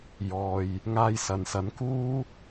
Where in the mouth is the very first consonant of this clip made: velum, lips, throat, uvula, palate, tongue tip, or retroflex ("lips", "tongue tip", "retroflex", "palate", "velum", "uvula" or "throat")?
palate